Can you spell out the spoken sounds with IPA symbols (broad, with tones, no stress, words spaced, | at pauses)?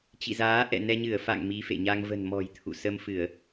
t͡ɕḭ˧˨zaː˨˦ ʔɛ̰˧˨nɛ˧ɲɨ˧˩ə̯ fa̰˧˨ŋ mi˨˦fḛ˧˨ɲa˧ŋ və̤˨˩nmɔ̤˨˩j t̪ʰṵ˧˨ sə˧mfɨ˧˩˨ə̯